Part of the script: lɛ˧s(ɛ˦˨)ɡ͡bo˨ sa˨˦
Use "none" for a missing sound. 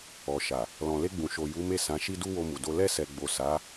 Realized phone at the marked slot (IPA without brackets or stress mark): ɛ˨